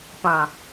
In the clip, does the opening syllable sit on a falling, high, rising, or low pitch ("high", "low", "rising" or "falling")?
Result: low